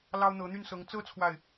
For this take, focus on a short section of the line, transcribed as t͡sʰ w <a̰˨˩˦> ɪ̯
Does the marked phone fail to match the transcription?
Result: yes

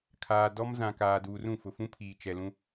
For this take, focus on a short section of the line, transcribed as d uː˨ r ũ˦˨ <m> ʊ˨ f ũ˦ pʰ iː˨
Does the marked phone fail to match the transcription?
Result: yes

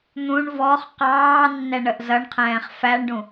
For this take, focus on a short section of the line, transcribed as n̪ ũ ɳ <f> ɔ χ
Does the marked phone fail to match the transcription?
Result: yes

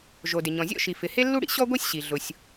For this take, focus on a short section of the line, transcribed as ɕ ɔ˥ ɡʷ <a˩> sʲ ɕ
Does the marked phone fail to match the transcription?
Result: yes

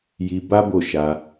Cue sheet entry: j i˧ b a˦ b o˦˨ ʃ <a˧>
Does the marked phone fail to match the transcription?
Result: no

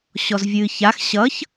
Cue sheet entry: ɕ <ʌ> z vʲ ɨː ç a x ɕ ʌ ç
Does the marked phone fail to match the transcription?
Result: yes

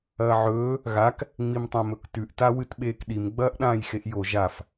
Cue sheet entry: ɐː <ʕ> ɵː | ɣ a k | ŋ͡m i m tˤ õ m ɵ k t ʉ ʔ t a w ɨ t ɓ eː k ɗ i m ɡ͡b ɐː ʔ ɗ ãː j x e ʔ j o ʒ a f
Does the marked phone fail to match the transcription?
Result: no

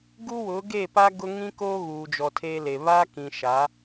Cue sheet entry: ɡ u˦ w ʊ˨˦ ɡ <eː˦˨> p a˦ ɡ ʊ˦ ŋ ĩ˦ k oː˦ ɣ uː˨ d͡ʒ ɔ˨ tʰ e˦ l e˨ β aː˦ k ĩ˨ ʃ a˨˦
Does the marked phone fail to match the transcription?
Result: no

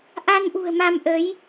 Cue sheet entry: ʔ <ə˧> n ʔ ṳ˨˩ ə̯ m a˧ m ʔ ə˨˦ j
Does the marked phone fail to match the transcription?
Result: yes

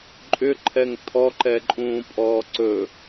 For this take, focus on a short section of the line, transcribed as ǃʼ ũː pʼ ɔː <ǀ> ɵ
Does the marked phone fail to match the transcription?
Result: no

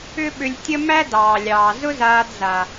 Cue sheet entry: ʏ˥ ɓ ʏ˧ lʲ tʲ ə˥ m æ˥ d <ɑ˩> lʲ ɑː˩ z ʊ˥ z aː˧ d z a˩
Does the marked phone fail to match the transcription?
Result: yes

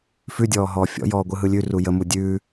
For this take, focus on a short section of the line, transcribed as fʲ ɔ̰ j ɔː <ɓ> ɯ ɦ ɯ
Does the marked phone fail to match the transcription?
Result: yes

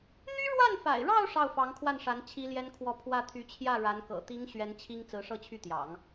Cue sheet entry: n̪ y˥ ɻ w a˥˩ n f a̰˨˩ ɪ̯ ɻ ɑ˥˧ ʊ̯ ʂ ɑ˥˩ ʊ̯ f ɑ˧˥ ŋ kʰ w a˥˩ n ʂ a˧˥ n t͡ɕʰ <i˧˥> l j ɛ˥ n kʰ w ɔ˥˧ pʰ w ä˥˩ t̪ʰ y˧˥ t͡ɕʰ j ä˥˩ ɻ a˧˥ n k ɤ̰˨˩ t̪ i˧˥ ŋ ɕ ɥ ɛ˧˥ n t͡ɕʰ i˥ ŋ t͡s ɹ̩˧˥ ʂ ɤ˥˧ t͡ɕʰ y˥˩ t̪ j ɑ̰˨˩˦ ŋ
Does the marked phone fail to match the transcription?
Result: yes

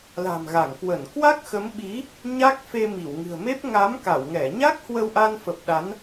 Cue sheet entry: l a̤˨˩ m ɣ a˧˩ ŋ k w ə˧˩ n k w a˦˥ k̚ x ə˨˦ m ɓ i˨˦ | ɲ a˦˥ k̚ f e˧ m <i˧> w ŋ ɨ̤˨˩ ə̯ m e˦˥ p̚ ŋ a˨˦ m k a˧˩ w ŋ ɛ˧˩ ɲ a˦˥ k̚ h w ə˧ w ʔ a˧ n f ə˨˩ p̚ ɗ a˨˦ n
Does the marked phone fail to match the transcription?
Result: yes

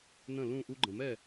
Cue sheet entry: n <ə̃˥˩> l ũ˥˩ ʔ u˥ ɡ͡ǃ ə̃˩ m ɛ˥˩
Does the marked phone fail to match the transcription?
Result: no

